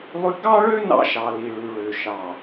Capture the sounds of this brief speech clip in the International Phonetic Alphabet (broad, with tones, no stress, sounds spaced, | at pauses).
lˠ ʉ˦ ɡ ɑ˦ ɭ ø˦ n ɑ̰˦ ʃ ɑ˨ l i˨ ɭ ʉ˨ ɭ ø˨ ʃ ɑ˨